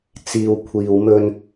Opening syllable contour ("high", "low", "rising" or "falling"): low